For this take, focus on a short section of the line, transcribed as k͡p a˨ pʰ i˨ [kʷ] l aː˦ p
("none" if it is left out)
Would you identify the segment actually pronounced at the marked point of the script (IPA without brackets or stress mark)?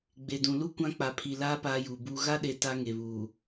none